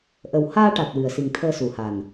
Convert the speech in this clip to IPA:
ʔə˨˩w haː˧ʈa˨˩t̚ wɨ˨˩ə̯si˨˩ŋt̪ʰəː˧ su˨˩ha˨˩n

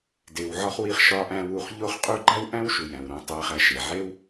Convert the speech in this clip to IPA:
de˩wʕɒ˧χ wi˧χʃɒ˧ ʔæ̃˧wu˩χ ʎo˥χqʼu˥ ɡ͡ǃæ˥wʔæ̃˥w ʃu˩jæ̃˩wɾõ˧ tˤæ˧χæ˧ ʃe˩ʕe˥w

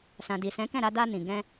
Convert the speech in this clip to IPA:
sã˨di˨sɛ̃˨˦kɛ̃˦˨ ɾa˧da˧nĩ˨ ɡɛ̃˧

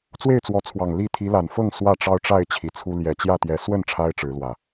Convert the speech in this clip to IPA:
t͡swe˥˨ɪ̯t͡swɔ˨˦t͡sʰwɑ˨˩ŋ li˥˨ t̪ʰi˨˦la˨˩nfɤ˥˨ŋ swä˥˨ʈ͡ʂɑ˦ʊ̯ʈ͡ʂa˥˨ɪ̯ t͡ɕʰi˨˩t͡sʰu˦ ljɛ˨˩t͡ɕjä˥˨t̪jɛ˨˦ swə˥˨n ʈ͡ʂʰa˦ɪ̯ʈ͡ʂɻ̩˨˦lwä˨˩

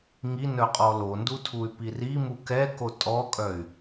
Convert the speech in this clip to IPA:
ŋi nœqʼɔlondu tʰuy̯pirimu kɛko tʼɔkʼœy̯

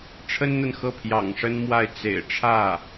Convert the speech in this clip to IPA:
ʈ͡ʂʰə˥nn̪ə˨nxɤ˥˩ pʰjɑ̰˨˩ŋʂə˥nmwa˥˩ɪ̯ t͡sḛ˨˩ɪ̯ ʈ͡ʂʰä˥˩

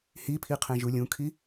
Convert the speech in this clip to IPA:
hipʰiqʰẽ ʒulʲũkʰi

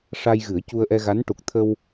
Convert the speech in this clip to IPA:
ʂa˧jɣɨ˨˩˦ə̯cu˧ə̯ʔɛ˧ ɣa˧˥n ʈu˨˩k̚t̪ʰə˧w

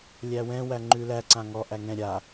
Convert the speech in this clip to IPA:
lʲæwɛ̃ wæŋ͡ǃʉlæ ǀãŋɔ ʔæŋɛ̃ ɾʲa

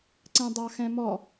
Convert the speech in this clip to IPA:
ǀɛ̃dˤɑxɛ̃mɔ

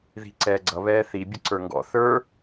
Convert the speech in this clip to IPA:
ði̤ ǀɛːɡ͡ǀʌ βɛːθi bʲʊǀə˞ŋɡɔ̰ θə˞

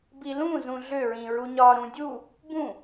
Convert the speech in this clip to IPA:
bilũ zũɮʏ ɹĩɹuɲɒ ɾũdʲu | bũ

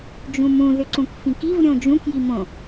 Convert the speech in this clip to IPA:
d͡ʒũmũ ðʏǀũkfĩkiv ɾʲõd͡ʒũk jimõ

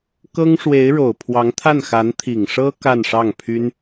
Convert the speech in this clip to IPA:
kɤ˥ŋʂwe˧˥ɪ̯ɻo˨˩ʊ̯ pʰwɑ˧˥ŋt̪ʰa˥˩nxa˧˥n t̪ʰi˨˩ŋʂɤ˥ ka˥˧nʂɑ˥˩ŋpʰy˥n

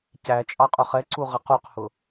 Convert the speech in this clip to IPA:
cæ t͡ʃʼɑqʼʊχɛǀu ʁɪquqhʊ

